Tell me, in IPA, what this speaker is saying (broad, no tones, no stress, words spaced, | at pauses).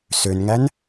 sønŋæn